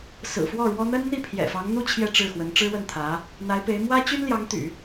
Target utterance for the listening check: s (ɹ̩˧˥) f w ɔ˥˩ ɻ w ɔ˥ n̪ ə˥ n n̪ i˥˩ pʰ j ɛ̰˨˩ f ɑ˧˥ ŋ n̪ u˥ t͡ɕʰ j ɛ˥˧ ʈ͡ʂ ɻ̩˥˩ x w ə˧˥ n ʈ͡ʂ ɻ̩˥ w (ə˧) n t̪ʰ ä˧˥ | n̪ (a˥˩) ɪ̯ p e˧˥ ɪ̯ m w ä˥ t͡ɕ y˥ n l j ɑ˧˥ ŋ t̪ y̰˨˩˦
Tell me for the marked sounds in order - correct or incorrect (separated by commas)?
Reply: incorrect, incorrect, incorrect